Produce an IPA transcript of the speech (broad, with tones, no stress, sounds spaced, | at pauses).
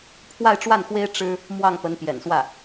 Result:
pʰ w a˥˧ ɪ̯ ʈ͡ʂ w a˥˩ n x w e˥ ɪ̯ ʈ͡ʂ ɻ̩˥ | m w ɑ˥˩ ŋ p ə˧˥ n p j ɛ̰˨˩ n s w ä˥˩